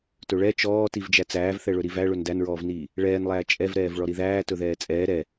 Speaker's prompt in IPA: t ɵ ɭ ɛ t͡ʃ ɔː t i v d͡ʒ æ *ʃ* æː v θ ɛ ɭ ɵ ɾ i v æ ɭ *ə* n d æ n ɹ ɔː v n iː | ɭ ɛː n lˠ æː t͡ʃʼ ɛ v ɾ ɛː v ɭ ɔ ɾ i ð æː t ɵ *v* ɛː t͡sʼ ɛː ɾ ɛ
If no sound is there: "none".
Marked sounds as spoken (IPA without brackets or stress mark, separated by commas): t͡s, ɵ, ð